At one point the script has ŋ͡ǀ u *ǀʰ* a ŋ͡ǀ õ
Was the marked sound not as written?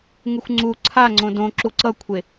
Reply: no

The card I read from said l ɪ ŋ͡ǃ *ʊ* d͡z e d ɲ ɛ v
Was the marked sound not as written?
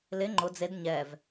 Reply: no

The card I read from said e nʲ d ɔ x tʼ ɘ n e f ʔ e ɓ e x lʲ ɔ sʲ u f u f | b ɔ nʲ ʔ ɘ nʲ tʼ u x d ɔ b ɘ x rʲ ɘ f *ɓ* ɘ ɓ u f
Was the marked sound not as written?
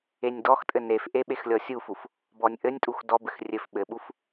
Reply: no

